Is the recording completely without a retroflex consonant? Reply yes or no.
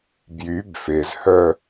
yes